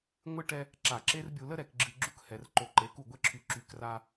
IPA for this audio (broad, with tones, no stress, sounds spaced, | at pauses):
ŋʷ ɨ˦ ʈ ɛ˦ | ǁ a˨ ǁ e˦ r bʲ u˨ l ə˦ ɾ ɛ˨ k ɡ͡ǁ ɨ˨ ɡ͡ǁ u˦ k h ɛ˨ r ǃ o˨ ǃ e˨˦ k u˦˨ ɡʷ ɛ˦ ǁʰ y˨ ǁ y˨ k r a˦